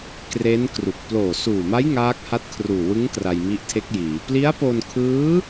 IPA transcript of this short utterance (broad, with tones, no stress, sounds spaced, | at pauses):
k r e˦˥ n k r u˨˩ k̚ p l oː˨˩ s uː˨˩ m a˦˥ j ŋ aː˦˥ k̚ h a˦˥ t̚ kʰ r uː˨˩ w ɯ˦˥ ŋ k r a˧ j m i˦˥ ʔ tʰ e˦˥ k̚ j iː˩˦ p l i˦˥ a̯ p o˧ n kʰ ɯː˦˥